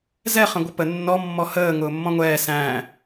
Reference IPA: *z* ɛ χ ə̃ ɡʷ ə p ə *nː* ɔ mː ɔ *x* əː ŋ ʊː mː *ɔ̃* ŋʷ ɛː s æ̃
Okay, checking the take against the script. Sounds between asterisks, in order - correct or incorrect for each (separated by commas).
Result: correct, correct, incorrect, correct